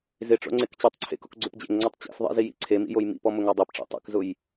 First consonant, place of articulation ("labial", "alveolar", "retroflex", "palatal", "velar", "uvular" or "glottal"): alveolar